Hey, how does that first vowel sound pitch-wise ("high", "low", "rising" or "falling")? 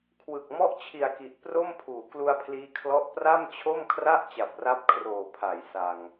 low